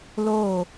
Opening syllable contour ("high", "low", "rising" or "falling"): falling